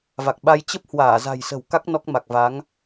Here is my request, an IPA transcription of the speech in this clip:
v a˨˩ k̚ ɓ a˧ j t͡ɕ ə˦˥ p̚ h w aː˧˩ z a̤˨˩ j s ə̤˨˩ w k a˦˥ k̚ n ɔ˦˥ k̚ m a˨˩ k̚ v a˨˦ ŋ

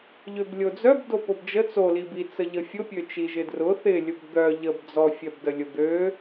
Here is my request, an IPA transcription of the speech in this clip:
ʎ ø b lʲ o d͡z œ b d o p o b d͡ʒ ə t͡s o l i b i t͡s ə ʎ ə fʲ ʊ pʲ ø t͡ʃ i ʒ ɪ d r ʊ θ ɪ lʲ ʊ b d̪ œ ʎ ə b d͡z ɔ fʲ œ b d ə lʲ ʊ d̪ ø

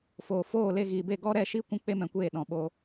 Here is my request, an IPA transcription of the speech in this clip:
f oː˨ f oː˦˨ l e˧ ɣ iː˨ b e˦˨ ɡ ɔ˦ ɾ ɛ˦˨ ʃ i˦ kʷ ũ˦ k͡p e˦ m ɛ̃˧ kʷ eː˦˨ ɗ ɔ̃˨ ɓ o˧

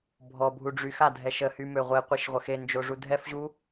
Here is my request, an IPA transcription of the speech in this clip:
bʱ ɔ bʱ u ɖ͡ʐ y x a dʱ ɛ ʃ ə h y m ø ʁʷ e qʷ i ʃ ʁʷ ə x e n d͡ʒ o ʐ u dʱ ɛ f ʑ u

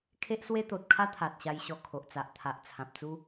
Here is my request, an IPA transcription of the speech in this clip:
kʰ e˦ ʔ s w e˦ t̪ o˨ t̚ kʰ a˦ t̪ʰ a˨ t̚ ɕ a˧ j ɕ ɔ˧ kʰ o˨ ʔ t͡s a˨ ʔ t̪ʰ a˨ ʔ t͡sʰ ã˨ p̚ t͡s u˦

